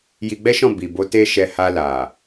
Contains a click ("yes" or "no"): no